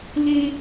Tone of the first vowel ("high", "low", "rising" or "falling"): high